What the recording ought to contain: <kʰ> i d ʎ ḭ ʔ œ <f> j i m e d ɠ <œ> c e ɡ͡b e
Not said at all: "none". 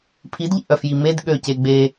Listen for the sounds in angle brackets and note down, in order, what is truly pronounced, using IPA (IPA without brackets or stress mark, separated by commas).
pʰ, f, ø